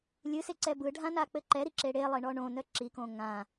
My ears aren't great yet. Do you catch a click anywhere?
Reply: yes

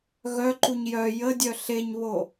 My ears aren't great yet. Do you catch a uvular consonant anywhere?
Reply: no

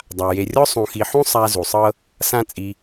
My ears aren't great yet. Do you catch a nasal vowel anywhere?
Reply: yes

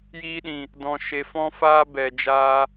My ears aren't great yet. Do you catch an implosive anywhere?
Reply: yes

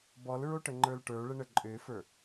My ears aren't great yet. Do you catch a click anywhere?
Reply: yes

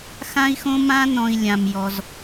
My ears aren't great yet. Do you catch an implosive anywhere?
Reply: no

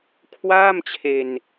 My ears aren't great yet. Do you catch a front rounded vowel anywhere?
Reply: no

